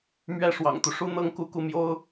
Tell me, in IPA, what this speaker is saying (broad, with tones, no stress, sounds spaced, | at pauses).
m ɥ ɛ˥˩ ʂ w ɑ̰˨˩ ŋ t̪ u˦ ʂ u˥ n̪ ɤ˥ ŋ k u˥˧ k u˥˩ m j o˥ ʊ̯